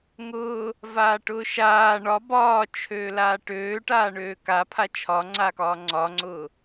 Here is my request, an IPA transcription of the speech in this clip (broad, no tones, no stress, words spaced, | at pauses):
ŋʊː | vaːʈʊːʃaː ɳɒ bɒːt͡ʃʰøː laːʈøːʈaː ɳøːkapʰa t͡ʃʰɒŋ͡ǀaːkɒː ŋ͡ǀɒŋ͡ǀʊː